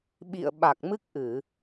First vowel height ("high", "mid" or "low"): high